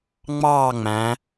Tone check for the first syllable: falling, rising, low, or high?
falling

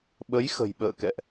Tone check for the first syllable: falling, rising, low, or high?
rising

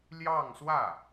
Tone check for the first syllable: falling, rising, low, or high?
falling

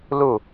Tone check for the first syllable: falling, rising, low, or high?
falling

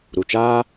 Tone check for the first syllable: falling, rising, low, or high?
low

